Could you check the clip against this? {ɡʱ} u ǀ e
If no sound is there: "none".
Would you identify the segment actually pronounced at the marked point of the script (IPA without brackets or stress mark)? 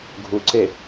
ɡʱ